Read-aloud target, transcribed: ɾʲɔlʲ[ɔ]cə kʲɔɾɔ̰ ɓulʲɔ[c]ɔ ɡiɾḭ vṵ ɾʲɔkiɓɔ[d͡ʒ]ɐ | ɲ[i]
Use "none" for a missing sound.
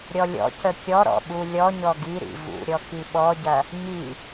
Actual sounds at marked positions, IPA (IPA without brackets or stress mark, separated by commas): ɔ̰, ɲ, ɟ, i